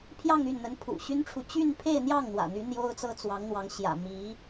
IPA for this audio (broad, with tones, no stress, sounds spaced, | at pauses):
pʰ j ɑ˥˧ ŋ y˥˩ n n̪ ə˧˥ n pʰ ṵ˨˩ ɕ y˥ n ʈ͡ʂʰ u˨ t͡ɕ y˥˧ n pʰ e˥˧ ɪ̯ n̪ j ɑ˥˩ ŋ n̪ w ä̰˨˩ n̪ y˧˥ n̪ j o˥ ʊ̯ t͡s ɤ˥ t͡s w ɑ˧˥ ŋ n̪ w ɑ˧˥ ŋ ɕ j ä̰˨˩ m i˧˥